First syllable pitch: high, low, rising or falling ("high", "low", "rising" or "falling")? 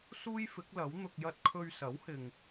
high